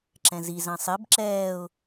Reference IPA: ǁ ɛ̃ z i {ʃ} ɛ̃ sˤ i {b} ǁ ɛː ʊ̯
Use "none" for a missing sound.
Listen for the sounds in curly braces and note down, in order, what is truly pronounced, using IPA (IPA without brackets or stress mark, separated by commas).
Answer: z, b